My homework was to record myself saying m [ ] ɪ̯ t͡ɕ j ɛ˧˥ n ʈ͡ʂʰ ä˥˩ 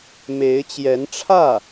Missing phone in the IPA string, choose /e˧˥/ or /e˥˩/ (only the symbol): e˧˥